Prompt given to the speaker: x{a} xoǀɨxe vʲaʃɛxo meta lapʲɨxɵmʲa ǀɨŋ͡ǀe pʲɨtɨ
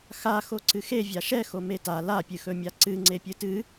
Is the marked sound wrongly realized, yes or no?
no